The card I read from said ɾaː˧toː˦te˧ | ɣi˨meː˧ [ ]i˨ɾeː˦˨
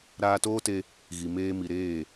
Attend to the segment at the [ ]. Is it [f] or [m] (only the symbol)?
m